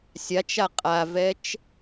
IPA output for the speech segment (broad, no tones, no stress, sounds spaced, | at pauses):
sʲ a t͡ʃ a qʼ a v ɛ t͡ʃ